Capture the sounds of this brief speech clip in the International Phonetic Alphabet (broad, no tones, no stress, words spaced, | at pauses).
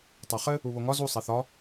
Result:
tˤaχɘ | uβoŋɒ zu sˤɛθɒ